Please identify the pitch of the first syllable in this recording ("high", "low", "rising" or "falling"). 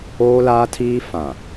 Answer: high